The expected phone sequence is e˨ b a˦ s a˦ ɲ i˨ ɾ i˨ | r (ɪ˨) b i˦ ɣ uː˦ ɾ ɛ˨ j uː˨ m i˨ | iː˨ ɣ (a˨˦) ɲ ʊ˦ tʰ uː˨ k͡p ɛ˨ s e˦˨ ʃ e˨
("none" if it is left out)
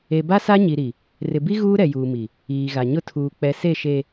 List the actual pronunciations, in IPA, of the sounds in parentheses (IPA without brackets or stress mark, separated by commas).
ɪ˨, a˨